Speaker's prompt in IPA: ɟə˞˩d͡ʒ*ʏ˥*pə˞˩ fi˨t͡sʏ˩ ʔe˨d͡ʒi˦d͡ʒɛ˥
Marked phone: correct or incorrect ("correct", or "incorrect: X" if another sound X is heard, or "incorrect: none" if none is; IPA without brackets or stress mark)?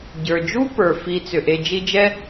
incorrect: u˥